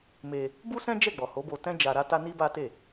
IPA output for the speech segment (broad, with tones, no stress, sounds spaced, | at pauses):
m e˧ | b u˦ s ɛ̃˦ d͡ʒ ɛ˦˨ ɡ͡b ɔ˨ h o˨˦ b o˧ t ɛ̃˦ d͡ʒ a˧ ɾ a˦ t a˦ n i˦ b a˦ t e˦˨